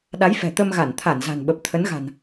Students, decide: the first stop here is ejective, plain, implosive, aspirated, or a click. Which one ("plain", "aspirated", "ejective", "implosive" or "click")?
implosive